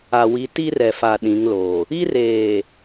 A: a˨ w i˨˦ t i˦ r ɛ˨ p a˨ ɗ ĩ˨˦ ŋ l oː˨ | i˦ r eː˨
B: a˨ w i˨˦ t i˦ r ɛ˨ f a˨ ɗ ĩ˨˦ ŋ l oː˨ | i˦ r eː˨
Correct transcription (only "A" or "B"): B